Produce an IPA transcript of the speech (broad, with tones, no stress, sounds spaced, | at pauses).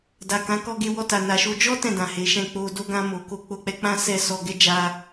d a˨ k ã˨˦ k ɔ˧ ɡ e˧ w ɔ˧ t a˨ n a˨ ʃ o˧ d͡ʒ ɔ˦ t ɛ̃˦˨ d ã˨ h e˨˦ ʃ ɛ̃˦˨ k͡p o˧ d o˧ ɡ ã˧ m o˨ k o˧ k͡p o˧ k͡p ɛ˧ k͡p ã˦ s ɛ˦ s ɔ˧ ɡ ɛ˦ d͡ʒ a˧